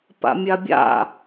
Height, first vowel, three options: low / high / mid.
low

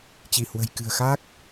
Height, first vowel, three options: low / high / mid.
high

